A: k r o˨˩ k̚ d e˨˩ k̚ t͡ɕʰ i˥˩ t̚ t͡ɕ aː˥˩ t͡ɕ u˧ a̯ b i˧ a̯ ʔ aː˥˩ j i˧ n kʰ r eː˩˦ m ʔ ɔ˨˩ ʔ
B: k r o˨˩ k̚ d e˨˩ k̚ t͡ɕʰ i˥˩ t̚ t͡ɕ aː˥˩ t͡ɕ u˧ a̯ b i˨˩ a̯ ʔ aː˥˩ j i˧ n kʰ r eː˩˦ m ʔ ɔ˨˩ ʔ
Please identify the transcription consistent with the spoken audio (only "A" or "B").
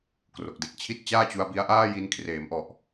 A